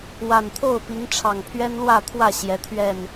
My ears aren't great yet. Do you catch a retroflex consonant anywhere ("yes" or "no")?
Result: yes